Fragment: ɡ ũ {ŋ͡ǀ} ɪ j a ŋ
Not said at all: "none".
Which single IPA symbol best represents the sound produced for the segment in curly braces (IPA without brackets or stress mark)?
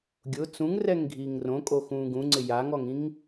ŋ͡ǀ